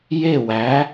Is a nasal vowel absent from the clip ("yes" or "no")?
yes